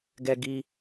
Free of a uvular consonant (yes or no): yes